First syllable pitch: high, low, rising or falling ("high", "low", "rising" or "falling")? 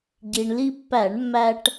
low